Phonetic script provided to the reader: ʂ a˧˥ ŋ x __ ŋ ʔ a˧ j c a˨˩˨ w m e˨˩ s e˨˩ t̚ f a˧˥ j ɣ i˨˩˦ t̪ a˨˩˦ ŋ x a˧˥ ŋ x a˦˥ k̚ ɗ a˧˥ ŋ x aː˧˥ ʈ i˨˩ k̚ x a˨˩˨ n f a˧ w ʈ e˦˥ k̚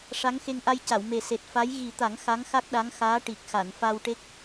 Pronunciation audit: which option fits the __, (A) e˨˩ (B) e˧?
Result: B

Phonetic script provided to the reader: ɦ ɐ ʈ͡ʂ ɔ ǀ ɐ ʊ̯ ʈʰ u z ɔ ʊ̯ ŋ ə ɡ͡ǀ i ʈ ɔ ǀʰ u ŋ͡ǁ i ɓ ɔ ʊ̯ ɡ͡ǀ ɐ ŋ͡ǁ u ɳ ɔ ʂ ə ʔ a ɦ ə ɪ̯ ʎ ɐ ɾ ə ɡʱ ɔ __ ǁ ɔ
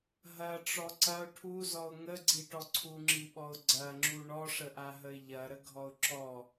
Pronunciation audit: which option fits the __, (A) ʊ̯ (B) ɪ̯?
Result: A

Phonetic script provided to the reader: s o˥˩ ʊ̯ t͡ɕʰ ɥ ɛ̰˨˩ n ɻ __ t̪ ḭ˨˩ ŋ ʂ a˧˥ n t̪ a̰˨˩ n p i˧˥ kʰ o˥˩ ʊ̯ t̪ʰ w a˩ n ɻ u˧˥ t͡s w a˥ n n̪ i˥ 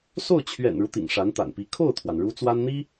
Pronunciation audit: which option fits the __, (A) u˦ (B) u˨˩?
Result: A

